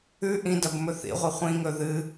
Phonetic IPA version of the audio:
ʉ ʔ ĩ d ɐ b m ɵ θ ḭ ʁʷ ɐ χʷ ĩ ŋ ɵ ð ɨ

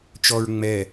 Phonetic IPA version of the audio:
t͡ʃ ɔ ɹ ŋ͡m ɛ

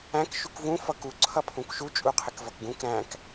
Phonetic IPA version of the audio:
æ̃ k ʃ u k v ũ f ʌ k u ǀʰ ʌ pʰ ũ k ʃ u t͡ʃʼ u qʰ ɪ k v ʌ k ɡ ũ k ɾ æ̃ k

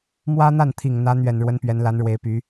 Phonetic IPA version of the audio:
m w ä˥ n̪ a˥˩ n t̪ʰ i˨˩ ŋ n̪ ä˧˥ n̪ ɥ ɛ˨˩ n ɻ w ə˧˥ n p ɥ ɛ˧˥ n l a˧˥ n ɻ w e˧˥ ɪ̯ p y˧˥

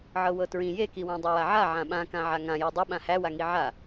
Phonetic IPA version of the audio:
ʕ ɤ w ɤ t ɹ ĩ j e k i w ã dˤ e w a ʕ a ʕ ã ɓ ã k ã ʕ a ŋ ã j e dˤ i ɓ ã h æ w a ŋ i ʕ a

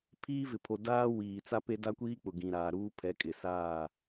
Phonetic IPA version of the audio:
pʰ iː˦ v ɪ˨ pʰ o˨ d aː˦ w iː˨ t͡s a˦ p e˦ d a˦ kʷ iː˦ k͡p ʊ˨ ɡ ĩ˨ ɾ aː˨ ɾ uː˦ pʰ ɛ˨˦ kʼ ɪ˨ s aː˦˨

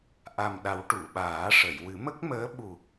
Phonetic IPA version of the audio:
ʔ a˨˩ m ɗ a˨˩˦ w ʈ u˨˩˨ ɓ aː˨˩˦ ʂ ə˨˩˨ j w ɨ˨˩˦ m ə˦˥ k̚ m əː˧˥ ɓ u˨˩

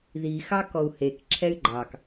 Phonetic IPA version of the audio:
ð i x ɑ k ɔ u̯ h e k ǁʰ ɛ y̯ ɡ͡ǃ ɑ k

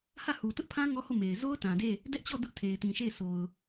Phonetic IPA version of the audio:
h ä˦˨ h u˨ t ʊ˦ ʔ pʰ ã˦ ŋ ɔ˦ h o˦˨ m e˨ ɪ̯ z o˦ ʊ̯ t ã˨ d e˦˨ | d ɛ˦ ʔ t͡ɕ ɔ˦˨ d ʊ˦ ʔ tʰ e˨ ɪ̯ t ĩ˨ ʃ e˦˨ ɪ̯ sʰ o˨ ʊ̯

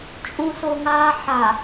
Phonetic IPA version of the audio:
t͡ʃʼ ũ s o ŋ aː ħ a

